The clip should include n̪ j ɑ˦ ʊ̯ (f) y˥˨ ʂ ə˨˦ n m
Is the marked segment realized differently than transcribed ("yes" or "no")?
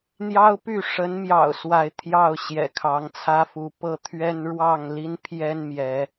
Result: yes